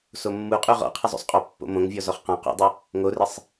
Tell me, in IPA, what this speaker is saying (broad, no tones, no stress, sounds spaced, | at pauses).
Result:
s o mː u qʼ u ʁ ɔ̰ qʰ ɪ zˤ o̰ sˤ qʼ ɔ pː o̰ m õ ŋ vʲ ɔ z ɔ χ q ɔ̃ q ṵ dˤ u | ŋ o r ɪ sˤ